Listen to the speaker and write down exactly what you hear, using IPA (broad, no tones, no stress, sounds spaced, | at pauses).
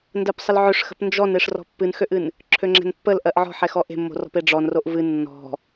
n d ɜ p sˤ ə l ʕ ø ʂ x ə̤ p n d͡ʒ ɔ n e ʂ r ɔ̤ pː ɨ n x ø ʔ ɨ n | ǁʰ ø ŋ͡ǁ ɛ̤ n pː ə l ʔ ɜ ʔ ʕ ɔ̤ ħ ɛ x ɔ ʔ e̤ mː o̤ r ɔ̤ p e ɖ͡ʐ ɔ n r o ʔ v ɨ nː ɔ̤